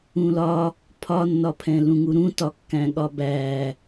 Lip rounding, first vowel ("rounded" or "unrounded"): rounded